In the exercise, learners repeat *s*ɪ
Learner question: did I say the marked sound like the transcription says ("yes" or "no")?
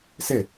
yes